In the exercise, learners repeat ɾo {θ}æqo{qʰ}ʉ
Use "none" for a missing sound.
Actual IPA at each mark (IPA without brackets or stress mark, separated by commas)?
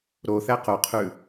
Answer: θ, qʰ